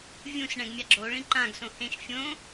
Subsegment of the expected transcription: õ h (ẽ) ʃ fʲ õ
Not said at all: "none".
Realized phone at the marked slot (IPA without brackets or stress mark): ẽ